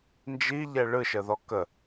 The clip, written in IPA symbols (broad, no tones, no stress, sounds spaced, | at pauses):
n d͡ʒ i ʎ ɛ ɭ ɯ ʃ ə ð ɔ k ə